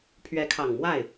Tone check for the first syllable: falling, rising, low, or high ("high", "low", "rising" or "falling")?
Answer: rising